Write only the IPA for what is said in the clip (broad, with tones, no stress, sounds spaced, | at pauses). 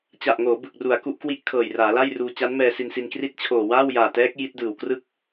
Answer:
t͡ɕ a˨˩ ʔ ŋ oː˩˦ b ɯ˨˩ k̚ r u˩˦ a̯ k u˦˥ ʔ k w i˥˩ ʔ kʰ ɤː˨˩ j r aː˩˦ l a˥˩ j r uː˧ t͡ɕ a˦˥ n m ɛː˧ s i˧ n s i˧ n k r i˥˩ t̚ t͡ɕʰ oː˨˩ w aː˥˩ w j aː˨˩ t ɛː˦˥ k̚ j i˦˥ t̚ d ɯː˨˩ w k r ɯ˥˩ k̚